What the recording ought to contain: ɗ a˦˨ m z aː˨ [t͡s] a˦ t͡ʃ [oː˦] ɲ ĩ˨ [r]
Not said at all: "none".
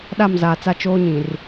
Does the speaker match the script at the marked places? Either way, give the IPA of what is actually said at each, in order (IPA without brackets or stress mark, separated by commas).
t͡s, oː˦, r